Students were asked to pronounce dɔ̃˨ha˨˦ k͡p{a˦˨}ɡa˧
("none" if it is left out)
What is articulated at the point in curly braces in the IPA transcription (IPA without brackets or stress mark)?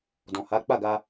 a˦˨